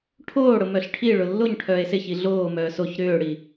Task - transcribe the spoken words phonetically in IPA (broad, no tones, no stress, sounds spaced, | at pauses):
ʈʰ oː ɽ ʊ m œ ɬ ʈʰ i ɭ ʊ lː o ɲ ʈʰ œː e̯ s ɪ ç i ɮ oː m œː s o ç ɾ ʏː ɽ i